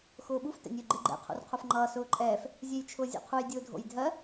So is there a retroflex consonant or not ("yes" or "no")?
no